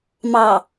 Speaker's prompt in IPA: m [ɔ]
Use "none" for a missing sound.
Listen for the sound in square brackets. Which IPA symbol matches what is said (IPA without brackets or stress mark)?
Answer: ɑ